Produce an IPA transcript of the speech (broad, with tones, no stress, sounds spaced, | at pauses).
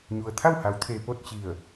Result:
ɲ u˩ ə̯ t̪ʰ a˥˨ w h a˩˧ w t̪ʰ e˩ p o˥˨ t̚ t͡ɕ i˧˩ ə̯